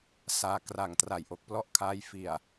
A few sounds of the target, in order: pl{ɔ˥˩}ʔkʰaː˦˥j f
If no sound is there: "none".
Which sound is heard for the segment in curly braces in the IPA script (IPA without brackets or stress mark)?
ɔ˥˩